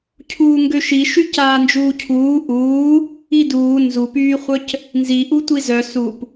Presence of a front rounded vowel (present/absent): present